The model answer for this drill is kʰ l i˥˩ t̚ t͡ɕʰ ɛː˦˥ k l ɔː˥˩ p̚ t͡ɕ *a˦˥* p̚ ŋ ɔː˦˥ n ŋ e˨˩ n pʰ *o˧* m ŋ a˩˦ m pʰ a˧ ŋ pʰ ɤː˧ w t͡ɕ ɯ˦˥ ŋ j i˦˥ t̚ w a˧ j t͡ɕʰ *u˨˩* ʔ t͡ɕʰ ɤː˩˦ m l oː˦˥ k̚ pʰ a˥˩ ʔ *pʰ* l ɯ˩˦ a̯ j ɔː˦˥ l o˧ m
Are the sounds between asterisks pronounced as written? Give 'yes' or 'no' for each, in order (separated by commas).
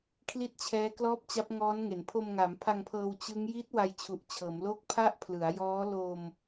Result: yes, yes, yes, yes